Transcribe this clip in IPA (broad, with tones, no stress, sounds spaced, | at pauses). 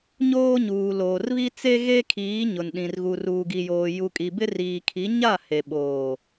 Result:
ɲ oː˦ ɲ uː˨ l oː˨ r β i˦ t͡s e˦ ɣ e˦ kʰ iː˨˦ ɲ ʊ˨ n ɗ ĩ˨ r ɣ u˨ r uː˨ ɡ i˨ j oː˨ j u˨ kʼ i˨ b ɪ˦ r iː˨ kʰ i˨˦ ɲ a˦˨ h e˨ ɓ oː˨